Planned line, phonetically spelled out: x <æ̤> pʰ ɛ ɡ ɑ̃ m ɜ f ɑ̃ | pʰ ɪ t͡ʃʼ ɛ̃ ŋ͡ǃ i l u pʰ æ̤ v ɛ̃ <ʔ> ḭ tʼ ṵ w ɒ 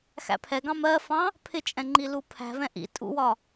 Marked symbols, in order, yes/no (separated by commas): no, yes